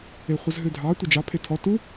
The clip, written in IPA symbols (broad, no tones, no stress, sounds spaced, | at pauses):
e χʷ ə z ɦ ø dʱ ɑ tʷ e d͡ʒ ɑ pʰ e tʰ ɔ t u